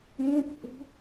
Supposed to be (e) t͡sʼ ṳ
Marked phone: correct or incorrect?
incorrect